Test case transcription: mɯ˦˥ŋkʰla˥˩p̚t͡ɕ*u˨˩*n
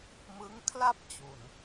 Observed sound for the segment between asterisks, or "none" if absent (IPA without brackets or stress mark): u˨˩